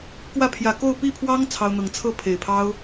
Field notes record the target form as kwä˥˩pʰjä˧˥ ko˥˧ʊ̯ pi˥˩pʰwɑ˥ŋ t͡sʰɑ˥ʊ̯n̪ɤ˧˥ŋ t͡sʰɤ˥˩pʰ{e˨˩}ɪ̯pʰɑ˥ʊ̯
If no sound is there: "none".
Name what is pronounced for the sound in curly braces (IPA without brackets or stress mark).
e˨˩